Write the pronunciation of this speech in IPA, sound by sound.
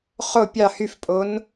χ o pʲ ɑ h y f pʼ o n

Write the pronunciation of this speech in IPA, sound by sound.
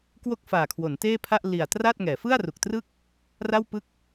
k w o˥˩ k̚ f aː˨˩ kʰ w o˩˦ n t eː˥˩ pʰ a˥˩ ʔ l i˨˩ a̯ t r a˥˩ t̚ ŋ ɛː˩˦ f ɯ˥˩ a̯ r u˨˩ k̚ t r ɯ˥˩ k̚ | r a˥˩ w p ɯ˥˩ k̚

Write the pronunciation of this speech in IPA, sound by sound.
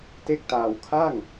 t e˥˩ k̚ t aː˧ w kʰ a˥˩ ŋ

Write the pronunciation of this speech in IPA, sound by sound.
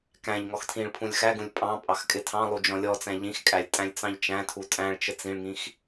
k æ̃ ʎ ŋ ɔ x tʰ ĩ ɭ pʰ ũ lʲ x æ ɡ ũ lʲ pʼ ɑ̃ pʼ ɑ x kʼ ɪ tʰ ɑ̃ lˠ u d͡ʒ ɔ̃ lʲ ɔ t͡s æ̃ ʎ ĩ x kʼ æ lʲ tʼ æ̃ lʲ t͡s ɑ̃ ʎ t͡ʃ æ̃ tʰ u tʼ æ̃ ɭ t͡ʃ ə t͡s ĩ ɭ ŋ ĩ x

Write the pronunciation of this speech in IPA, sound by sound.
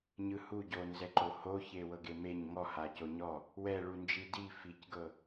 ɲ ɯ h u ɟ o n z ɛ ǃ o h o ç e w ɤ ɡ e m e ɲ ŋ ɔ h a c o ɲ ɔ | w ɛ ɭ u n d͡ʒ i d i f i c ɡ ɤ

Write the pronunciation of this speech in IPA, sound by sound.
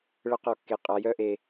ɭ ə˧˥˧ q ɔ˨ kː e˨ qʼ a˨˦ j œ˥˧ ʔ e˨

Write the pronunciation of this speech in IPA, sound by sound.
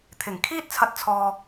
t̪ʰ ɪ˨˩ ŋ kʰ iː˥ t̚ t͡sʰ ɐ˧ t̚ t͡sʰ ɔː˨

